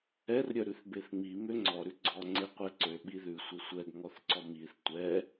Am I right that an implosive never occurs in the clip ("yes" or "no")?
no